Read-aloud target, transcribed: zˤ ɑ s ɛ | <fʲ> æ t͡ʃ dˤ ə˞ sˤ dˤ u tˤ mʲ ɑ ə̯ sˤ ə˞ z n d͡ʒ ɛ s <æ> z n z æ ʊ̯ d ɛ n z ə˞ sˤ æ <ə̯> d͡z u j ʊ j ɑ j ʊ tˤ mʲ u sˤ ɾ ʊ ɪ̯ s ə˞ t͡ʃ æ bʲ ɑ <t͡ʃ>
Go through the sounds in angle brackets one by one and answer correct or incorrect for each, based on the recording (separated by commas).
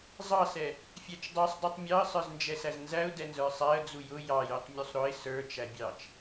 correct, correct, correct, correct